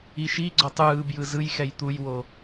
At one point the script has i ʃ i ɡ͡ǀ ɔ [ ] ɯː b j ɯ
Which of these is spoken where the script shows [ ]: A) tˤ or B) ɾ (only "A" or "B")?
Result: A